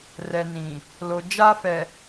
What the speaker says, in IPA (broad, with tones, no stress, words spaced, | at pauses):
rɛ˨nĩ˨ | lo˨d͡ʒa˦fɛ˨